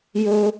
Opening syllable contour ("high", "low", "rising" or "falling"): high